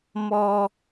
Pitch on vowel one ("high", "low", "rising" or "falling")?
high